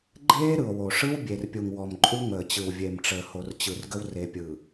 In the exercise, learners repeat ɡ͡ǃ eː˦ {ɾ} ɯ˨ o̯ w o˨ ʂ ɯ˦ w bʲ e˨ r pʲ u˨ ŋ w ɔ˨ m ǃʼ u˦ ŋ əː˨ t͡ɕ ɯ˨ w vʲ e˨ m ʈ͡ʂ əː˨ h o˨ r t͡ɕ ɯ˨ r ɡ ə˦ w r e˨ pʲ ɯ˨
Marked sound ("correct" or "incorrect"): correct